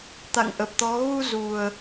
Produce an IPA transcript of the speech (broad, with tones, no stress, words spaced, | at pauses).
t̪a̰˧˨ŋ ʔə˨˩p̚t̪ɔ˨˦ ɣu˧ zu˨˩ə̯